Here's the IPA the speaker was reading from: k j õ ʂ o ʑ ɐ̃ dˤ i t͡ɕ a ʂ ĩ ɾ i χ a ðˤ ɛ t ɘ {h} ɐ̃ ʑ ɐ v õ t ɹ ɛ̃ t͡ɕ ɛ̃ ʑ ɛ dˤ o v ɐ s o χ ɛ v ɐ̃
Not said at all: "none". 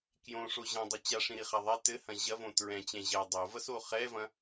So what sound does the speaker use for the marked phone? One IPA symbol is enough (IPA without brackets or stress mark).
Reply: h